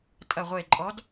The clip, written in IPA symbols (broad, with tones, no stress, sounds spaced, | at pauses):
tʼ ɐ˨˩ ʁʷ e˨˩ ǃʼ ɔ˨˦ d